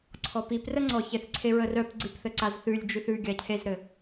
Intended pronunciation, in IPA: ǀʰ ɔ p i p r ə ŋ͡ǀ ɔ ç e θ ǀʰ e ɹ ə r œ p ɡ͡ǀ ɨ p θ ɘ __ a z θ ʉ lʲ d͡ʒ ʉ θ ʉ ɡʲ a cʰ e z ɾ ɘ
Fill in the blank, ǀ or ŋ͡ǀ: ǀ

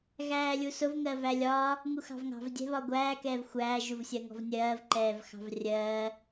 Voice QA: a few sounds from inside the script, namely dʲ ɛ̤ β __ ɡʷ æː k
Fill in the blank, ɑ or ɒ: ɒ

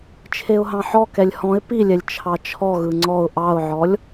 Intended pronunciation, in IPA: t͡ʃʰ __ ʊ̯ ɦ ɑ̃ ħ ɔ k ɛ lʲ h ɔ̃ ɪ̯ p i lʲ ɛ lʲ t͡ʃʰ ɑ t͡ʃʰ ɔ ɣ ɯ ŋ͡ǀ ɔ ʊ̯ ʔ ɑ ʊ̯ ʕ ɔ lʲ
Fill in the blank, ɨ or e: e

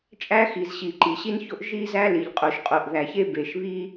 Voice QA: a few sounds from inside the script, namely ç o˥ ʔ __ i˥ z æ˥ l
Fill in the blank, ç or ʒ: ʒ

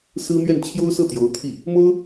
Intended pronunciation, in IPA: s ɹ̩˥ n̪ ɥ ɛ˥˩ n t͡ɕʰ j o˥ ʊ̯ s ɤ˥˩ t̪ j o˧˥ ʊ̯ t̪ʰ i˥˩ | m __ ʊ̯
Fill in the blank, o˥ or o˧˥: o˥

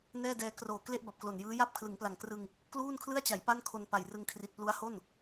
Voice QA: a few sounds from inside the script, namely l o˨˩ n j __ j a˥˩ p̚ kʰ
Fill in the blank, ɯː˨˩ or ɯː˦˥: ɯː˦˥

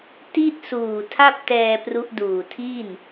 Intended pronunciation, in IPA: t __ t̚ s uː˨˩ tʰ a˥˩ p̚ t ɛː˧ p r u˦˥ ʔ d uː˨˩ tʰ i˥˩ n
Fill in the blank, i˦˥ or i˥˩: i˥˩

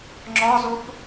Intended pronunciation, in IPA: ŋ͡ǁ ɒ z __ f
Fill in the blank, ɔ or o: o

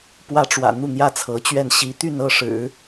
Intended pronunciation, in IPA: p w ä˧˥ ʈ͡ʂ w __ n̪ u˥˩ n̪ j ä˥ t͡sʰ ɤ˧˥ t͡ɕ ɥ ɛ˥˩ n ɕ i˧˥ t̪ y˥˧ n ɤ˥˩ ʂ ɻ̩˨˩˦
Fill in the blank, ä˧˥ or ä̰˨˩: ä̰˨˩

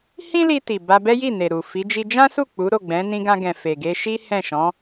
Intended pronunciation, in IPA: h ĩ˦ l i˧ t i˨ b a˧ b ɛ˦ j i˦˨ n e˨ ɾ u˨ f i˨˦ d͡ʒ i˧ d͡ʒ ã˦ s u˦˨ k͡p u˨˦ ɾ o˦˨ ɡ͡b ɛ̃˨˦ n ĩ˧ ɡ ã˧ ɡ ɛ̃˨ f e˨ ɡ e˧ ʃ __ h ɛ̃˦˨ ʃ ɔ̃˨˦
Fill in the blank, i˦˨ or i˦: i˦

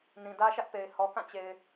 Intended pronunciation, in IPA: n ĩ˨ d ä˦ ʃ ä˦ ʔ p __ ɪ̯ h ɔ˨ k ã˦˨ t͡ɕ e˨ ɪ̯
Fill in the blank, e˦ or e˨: e˨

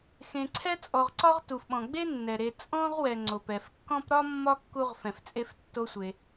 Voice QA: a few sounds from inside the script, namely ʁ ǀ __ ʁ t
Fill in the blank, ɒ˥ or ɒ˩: ɒ˥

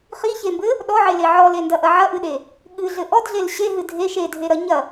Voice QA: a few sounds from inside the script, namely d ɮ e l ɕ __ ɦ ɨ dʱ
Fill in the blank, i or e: e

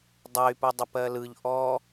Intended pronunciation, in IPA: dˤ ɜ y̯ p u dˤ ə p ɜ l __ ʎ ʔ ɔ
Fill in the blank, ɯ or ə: ɯ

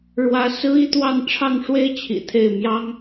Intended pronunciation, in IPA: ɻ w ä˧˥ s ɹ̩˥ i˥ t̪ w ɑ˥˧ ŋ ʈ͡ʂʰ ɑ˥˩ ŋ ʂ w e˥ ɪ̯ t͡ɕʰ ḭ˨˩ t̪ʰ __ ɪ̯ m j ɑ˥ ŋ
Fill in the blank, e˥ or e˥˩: e˥˩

